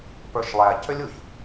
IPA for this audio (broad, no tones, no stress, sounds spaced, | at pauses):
p ə˞ ʃ lˠ æ c ø lʲ u ç